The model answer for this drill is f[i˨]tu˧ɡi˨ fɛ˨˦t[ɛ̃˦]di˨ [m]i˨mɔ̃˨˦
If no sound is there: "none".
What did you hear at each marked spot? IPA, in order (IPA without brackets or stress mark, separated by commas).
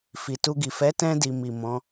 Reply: i˨, ɛ̃˧, m